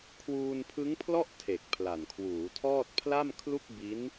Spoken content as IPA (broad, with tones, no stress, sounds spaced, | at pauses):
kʰ w uː˧ n pʰ ɯ˦˥ ŋ pʰ l ɔ˥˩ ʔ tʰ e˨˩ k̚ pʰ l a˨˩ n kʰ w uː˩˦ tʰ ɔː˥˩ t̚ pʰ l a˥˩ m kʰ l u˥˩ k̚ b i˦˥ n